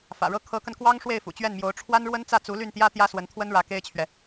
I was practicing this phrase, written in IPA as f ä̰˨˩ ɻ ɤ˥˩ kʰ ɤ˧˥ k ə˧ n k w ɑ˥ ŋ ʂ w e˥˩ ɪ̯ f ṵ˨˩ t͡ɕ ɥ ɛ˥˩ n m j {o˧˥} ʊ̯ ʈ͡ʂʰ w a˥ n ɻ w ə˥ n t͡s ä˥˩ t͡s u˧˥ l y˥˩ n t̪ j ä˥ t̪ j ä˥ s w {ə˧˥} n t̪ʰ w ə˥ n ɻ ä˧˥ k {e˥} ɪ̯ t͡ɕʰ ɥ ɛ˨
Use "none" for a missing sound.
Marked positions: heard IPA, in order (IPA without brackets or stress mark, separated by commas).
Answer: o˧˥, ə˧˥, e˥